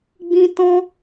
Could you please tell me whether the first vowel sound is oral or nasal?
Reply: nasal